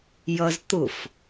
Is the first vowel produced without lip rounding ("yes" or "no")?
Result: yes